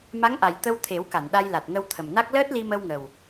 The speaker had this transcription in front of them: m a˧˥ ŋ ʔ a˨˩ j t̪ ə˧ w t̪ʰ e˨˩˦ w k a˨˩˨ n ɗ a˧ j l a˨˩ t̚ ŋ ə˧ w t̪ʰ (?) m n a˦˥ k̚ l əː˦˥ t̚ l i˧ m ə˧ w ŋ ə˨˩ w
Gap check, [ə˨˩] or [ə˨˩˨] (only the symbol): ə˨˩